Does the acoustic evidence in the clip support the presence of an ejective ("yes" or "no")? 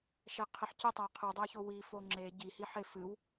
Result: no